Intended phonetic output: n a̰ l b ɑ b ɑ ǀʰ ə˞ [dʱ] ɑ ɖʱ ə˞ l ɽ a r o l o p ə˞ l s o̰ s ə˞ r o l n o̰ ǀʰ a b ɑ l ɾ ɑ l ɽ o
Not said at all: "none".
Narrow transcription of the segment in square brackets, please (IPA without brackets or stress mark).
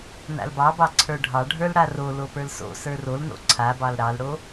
ɖʱ